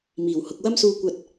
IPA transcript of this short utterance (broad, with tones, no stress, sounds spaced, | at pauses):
m iː˨˩ w h ʊ˨ k̚ w ɐ˥ m s uː˧ kʷ ɐ˧ t̚